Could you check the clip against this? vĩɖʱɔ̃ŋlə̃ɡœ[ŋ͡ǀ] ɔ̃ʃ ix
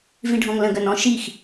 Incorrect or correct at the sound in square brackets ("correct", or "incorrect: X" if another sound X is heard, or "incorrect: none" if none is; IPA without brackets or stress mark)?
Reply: incorrect: n